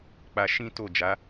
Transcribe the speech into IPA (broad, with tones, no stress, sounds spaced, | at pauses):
k͡p a˧ ʃ ĩ˦ t o˦˨ d͡ʒ a˨˦